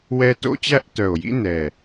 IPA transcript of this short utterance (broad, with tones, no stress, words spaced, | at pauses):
wɛ˦ to̰˦t͡ɕæ˦ʔtœ˨˩o̯jḭ˦ nɛ˨˩